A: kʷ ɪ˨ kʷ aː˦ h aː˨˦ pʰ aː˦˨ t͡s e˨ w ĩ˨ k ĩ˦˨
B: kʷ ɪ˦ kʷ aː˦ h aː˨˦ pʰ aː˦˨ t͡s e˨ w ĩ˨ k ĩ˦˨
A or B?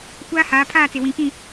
A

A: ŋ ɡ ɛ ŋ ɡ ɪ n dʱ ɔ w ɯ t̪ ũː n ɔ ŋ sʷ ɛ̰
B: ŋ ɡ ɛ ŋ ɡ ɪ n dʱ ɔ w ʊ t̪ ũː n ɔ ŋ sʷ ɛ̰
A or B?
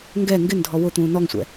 B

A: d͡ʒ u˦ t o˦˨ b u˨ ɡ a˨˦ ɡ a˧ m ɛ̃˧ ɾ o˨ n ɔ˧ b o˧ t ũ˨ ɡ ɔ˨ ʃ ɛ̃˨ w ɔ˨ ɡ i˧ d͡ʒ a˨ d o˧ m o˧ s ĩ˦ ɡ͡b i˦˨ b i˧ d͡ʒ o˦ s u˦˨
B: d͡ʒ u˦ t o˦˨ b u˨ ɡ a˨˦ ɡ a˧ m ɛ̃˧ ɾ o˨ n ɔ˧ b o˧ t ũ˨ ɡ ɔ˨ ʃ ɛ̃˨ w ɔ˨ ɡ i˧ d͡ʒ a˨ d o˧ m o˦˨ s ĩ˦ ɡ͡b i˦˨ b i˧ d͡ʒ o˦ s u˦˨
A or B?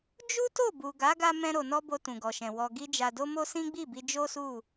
A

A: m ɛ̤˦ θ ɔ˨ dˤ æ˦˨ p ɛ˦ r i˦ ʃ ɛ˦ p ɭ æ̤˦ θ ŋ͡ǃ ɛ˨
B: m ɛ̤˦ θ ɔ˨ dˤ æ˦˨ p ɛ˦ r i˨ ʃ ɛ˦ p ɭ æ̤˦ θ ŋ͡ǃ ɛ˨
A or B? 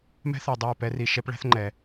B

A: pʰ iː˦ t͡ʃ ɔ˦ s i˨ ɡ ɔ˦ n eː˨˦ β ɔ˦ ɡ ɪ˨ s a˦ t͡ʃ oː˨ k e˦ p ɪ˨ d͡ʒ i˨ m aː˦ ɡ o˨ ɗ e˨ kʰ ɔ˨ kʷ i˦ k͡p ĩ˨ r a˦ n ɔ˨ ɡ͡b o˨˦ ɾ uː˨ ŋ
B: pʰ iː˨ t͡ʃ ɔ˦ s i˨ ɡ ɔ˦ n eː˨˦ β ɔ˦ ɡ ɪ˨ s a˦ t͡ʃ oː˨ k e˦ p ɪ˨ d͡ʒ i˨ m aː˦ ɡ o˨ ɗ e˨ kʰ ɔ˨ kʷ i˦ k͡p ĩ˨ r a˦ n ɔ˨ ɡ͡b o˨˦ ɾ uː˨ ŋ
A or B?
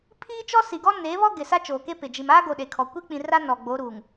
A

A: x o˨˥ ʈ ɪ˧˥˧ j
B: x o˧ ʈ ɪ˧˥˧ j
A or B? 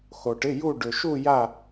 B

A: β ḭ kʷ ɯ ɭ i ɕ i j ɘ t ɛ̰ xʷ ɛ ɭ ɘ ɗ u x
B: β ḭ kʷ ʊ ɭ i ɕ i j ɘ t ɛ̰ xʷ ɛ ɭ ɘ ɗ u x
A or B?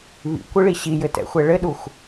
A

